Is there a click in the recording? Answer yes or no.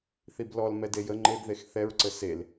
yes